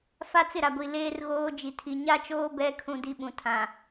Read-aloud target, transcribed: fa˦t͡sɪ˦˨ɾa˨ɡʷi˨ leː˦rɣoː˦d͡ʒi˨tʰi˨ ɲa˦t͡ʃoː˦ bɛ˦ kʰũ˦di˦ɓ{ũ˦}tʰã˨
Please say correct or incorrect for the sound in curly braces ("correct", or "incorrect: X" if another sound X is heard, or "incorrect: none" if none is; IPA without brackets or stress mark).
incorrect: ũ˨